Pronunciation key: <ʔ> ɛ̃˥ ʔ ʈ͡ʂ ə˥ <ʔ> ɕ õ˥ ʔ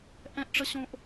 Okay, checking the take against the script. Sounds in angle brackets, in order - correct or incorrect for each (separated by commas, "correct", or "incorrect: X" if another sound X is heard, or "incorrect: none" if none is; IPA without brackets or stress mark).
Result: correct, incorrect: none